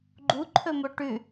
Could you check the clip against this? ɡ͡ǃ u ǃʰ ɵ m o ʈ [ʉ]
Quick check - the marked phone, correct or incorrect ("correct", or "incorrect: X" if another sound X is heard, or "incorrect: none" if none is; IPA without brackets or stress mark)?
correct